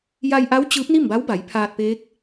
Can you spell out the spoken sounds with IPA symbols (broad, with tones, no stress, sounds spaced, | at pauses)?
j a˧ j ʔ a˧˥ w t͡ɕ ɯː˧˥ p̚ n i˥˨ m b a˧˥ w b a˩˧ j pʰ aː˧ t̚ p eː˧˥ k̚